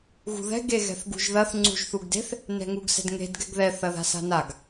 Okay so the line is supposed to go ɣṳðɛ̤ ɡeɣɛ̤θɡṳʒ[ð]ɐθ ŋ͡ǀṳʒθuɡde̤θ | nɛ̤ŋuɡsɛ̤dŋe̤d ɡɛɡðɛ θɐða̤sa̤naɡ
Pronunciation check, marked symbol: correct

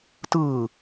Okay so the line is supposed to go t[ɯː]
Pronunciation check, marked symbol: correct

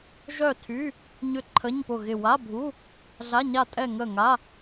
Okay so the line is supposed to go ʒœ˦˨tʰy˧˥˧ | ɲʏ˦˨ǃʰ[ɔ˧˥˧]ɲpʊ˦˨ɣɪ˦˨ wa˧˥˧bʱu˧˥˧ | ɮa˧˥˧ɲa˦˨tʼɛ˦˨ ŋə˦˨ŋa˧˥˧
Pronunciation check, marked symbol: incorrect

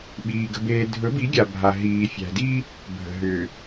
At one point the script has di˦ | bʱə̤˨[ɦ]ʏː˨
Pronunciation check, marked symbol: correct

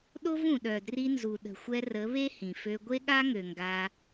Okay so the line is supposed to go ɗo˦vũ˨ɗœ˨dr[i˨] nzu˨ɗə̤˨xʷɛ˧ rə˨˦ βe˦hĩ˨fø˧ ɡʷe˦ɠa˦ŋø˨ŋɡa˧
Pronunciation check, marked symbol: incorrect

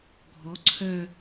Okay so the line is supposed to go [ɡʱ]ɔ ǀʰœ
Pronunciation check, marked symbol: correct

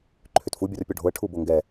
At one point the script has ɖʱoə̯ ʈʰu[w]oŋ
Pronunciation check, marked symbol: incorrect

